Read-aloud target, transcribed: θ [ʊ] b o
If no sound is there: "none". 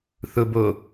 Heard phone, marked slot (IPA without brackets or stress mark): ʊ